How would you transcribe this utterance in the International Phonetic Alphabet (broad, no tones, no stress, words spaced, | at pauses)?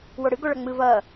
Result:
woɽɨ ɡoɭɐŋ͡mɨ vɐː